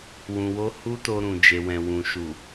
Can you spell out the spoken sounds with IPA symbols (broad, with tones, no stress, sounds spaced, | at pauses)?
w ũ˧ w o˦ h u˦ t o˧ ɾ ũ˨ d͡ʒ e˨ w ɛ̃˨ w ũ˨ ʃ u˨